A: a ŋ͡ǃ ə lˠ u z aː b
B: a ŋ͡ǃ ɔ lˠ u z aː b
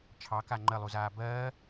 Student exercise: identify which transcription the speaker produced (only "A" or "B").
A